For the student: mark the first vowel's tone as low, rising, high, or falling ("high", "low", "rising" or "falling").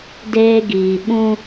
high